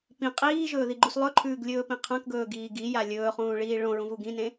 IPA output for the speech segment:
p ĩ qʼ iː ʒ ɵː ð i ɡ͡ǃ u s lˠ ɵ ǃʰ ʉː ɡ lʲ ɵː p ĩ qʰ ɐ̃ k ɡ ɵː ɡ iː ɡ i j a lʲ ɵː χ ũː ɭ iː ɭ õ ɹ ũ v u ɡ ĩ n ẽ

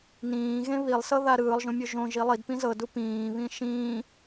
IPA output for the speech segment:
n ĩː ɣ ẽ β i lˠ s ɤ ð a ɾ ɯː lˠ ʒ õ mʲ o ʒ õ ʒ i lˠ i d p ĩ z ɤ d u p ĩː β ĩ ʃ ĩː

